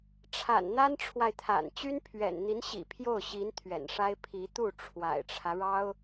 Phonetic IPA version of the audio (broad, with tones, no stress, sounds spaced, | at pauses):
ʈ͡ʂʰ a̰˨˩ n n̪ a˥ n ʈ͡ʂʰ w a˨ ɪ̯ t̪ʰ a̰˨˩ n t͡ɕ y˥ n pʰ ɥ ɛ̰˨˩ n n̪ i˧˥ n ɕ ḭ˨˩ pʰ j o˥˩ ʊ̯ ɕ i˧˥ n t̪ʰ ɥ ɛ̰˨˩ n ʂ a˥ ɪ̯ pʰ i˧˥ t̪ u˥˩ ʈ͡ʂʰ w a̰˨˩ ɪ̯ ʈ͡ʂʰ ä˦ ɻ ɑ˥ ʊ̯